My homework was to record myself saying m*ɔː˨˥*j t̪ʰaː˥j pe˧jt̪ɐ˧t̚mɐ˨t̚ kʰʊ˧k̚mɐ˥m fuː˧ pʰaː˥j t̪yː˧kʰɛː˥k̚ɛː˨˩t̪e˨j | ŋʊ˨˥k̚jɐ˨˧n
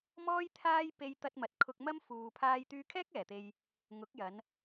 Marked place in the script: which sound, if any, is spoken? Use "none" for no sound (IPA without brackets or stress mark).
ɔː˥